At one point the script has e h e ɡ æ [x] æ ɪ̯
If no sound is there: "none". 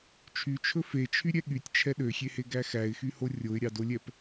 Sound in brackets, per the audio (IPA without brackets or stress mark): x